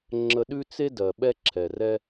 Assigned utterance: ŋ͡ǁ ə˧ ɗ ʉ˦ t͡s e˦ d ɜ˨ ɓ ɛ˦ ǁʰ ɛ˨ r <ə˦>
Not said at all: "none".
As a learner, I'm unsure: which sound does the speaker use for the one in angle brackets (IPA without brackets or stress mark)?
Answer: ɛ˦